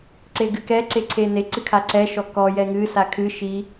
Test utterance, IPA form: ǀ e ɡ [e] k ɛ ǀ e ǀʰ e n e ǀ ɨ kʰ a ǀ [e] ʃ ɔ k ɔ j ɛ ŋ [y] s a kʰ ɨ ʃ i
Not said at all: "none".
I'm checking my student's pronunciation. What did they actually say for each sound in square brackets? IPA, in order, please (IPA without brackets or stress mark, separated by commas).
ɨ, ɛ, ɨ